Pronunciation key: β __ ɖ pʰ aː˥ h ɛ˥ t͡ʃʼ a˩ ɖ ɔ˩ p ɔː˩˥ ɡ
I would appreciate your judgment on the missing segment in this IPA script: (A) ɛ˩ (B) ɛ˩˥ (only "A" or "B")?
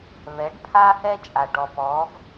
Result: B